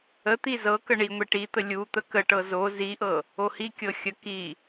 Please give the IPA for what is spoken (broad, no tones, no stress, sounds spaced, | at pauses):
ə t̪ i z ɤ k ə ɳ i ŋʷ i ʈ i t̪ ə lʲ u t̪ ə k ə ʈ ɤ z o z i ʔ ɤ | o h i kʲ ɤ xʲ ə k i